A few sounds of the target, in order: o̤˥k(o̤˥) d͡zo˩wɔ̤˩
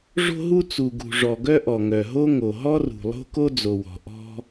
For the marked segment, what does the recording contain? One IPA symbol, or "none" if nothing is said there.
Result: o˥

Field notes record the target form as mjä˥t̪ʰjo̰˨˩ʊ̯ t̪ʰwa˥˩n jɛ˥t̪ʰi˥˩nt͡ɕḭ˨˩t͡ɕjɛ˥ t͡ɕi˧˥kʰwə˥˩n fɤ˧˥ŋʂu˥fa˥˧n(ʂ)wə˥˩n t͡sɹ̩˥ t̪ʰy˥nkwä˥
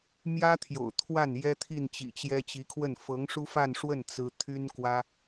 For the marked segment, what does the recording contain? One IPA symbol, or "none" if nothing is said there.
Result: ʂ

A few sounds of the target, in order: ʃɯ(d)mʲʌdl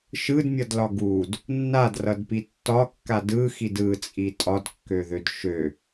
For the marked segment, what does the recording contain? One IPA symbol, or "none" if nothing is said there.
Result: d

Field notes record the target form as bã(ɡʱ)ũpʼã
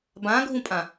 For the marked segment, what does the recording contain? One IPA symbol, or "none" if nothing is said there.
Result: ɡʱ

